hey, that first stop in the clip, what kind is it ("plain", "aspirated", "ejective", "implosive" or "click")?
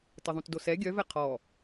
plain